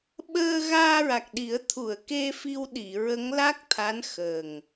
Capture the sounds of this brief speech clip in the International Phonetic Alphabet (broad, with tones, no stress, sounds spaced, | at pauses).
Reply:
ɓ əː˧ ɣ aː˧ ɹ a˨˩ k̚ ɗ i˨˩˦ ə̯ t̪ʰ u˨˩˨ ə̯ k e˧ f i˧ w ɗ i˨˩˨ ɹ ə˧˥ ŋ l a˦˥ k̚ t̪ʰ a˧˥ n x ə˨˩ ŋ